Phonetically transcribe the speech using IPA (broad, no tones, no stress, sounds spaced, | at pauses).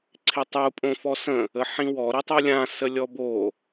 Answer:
ǀʰ ɪ tˤ u pʼ õ f ɔ s ə̃ | ə ħ ĩ w ɔ ɾ i tˤ u lʲ ã s ə lʲ ɔ b o